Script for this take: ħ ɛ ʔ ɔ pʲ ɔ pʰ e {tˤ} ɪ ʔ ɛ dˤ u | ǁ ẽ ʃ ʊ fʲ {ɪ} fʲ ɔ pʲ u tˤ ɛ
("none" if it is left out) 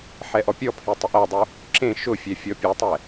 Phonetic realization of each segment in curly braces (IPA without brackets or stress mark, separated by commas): tˤ, ɛ